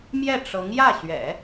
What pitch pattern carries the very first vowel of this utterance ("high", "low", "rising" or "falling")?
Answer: falling